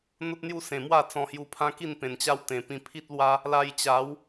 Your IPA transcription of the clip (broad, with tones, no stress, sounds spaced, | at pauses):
n̪ o˦ t̚ n̪ j u˥˧ s ẽ˨˩ m w a˥˧ t͡s ɔ̃˧ h j u˧ pʰ ã˦ k i˥˧ n p ẽ˨˩ n t͡ɕ a˦ w t̪ ẽ˨˩ p ĩ˧ pʰ i˦ t̚ l w a˦ | l a˧ j t͡ɕ a˨˦ w